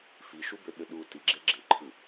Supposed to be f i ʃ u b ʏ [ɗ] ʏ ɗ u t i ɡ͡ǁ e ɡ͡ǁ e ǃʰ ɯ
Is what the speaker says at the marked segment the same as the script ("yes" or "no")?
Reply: yes